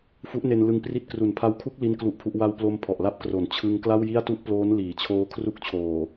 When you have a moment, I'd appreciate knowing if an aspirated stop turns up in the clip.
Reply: yes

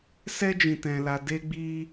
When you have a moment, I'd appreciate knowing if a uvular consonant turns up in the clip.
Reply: no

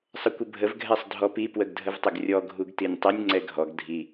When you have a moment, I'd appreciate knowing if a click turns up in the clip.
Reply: yes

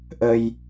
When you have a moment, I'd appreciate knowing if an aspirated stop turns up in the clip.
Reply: no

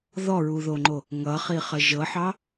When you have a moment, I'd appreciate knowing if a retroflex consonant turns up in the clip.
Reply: no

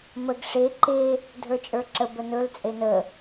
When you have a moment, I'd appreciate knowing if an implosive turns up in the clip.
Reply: no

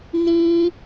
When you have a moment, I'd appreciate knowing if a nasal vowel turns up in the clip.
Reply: yes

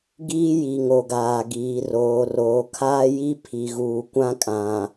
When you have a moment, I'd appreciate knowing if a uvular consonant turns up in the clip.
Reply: no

